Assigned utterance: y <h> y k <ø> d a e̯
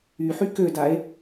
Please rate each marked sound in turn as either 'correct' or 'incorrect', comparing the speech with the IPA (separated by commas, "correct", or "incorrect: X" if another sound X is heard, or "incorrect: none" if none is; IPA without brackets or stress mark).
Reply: incorrect: ħ, correct